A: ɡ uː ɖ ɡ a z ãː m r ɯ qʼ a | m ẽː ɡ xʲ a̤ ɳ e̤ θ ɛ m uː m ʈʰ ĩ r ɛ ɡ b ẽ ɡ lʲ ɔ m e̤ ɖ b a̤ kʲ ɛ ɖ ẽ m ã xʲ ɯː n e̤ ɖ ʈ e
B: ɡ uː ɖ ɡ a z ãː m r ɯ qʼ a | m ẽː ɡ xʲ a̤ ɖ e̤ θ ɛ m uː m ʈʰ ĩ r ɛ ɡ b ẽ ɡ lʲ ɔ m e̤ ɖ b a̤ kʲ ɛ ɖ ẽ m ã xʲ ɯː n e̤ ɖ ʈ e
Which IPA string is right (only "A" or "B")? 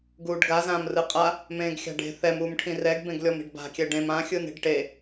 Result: B